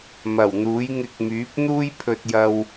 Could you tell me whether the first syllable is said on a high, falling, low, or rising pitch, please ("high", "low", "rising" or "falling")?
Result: low